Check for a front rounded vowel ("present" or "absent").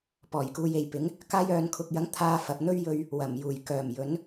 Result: present